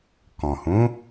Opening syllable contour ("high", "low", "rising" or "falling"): low